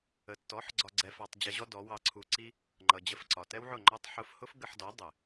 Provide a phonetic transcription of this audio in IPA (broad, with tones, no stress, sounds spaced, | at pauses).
ə˨ tː ɔ˨˦ ħ ɡ͡ǀ ɒ˧ ɡ͡ǀ ɛ˧ f ɑ˧ tˤ d͡ʑ ɛ˧ ʑ ɔ˦ d ɔ˨˦ w ɑ˧ ǀʰ u˧ ǀ i˦ | ŋ͡ǃ ʌ˨ d͡ʑ ə˧ f ǀ ɒ˨ t ɛ˦ w ʕ ʊ˦˨ ŋ͡ǃ ɒ˦ tˤ ħ ʊ˧ f h ʊ˦ f ɡ ə˧ ħ d ɔ˨˦ dˤ ɪ˨